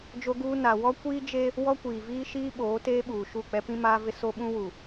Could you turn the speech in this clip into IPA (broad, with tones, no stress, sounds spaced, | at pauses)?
d͡ʒ o˦ ɡ uː˦ n a˨ w ɔ˦ kʷ iː˦ d͡ʒ e˦ | w ɔ˦ kʷ iː˨ v iː˦ ʃ iː˦ ɓ oː˨˦ t eː˦ ɓ uː˨ ʃ u˦˨ k͡p ɛ˦ p ĩ˦ m aː˦ v ɪ˦ s o˦ ɓ ũ˦ w u˨